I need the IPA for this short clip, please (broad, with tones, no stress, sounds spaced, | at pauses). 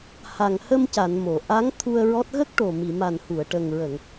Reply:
h a˨˩ ŋ h ə˧ m c a˨˩˨ n m o˨˩˨ ʔ a˧˥ ŋ t̪ʰ u˧ ə̯ ɹ ɔ˦˥ t̚ ɣ ə˦˥ k̚ ʈ o˨˩ m i˨˩˨ m a˨˩ n h u˨˩˨ ə̯ ʈ ə˨˩ ŋ ɹ ə˨˩˨ ŋ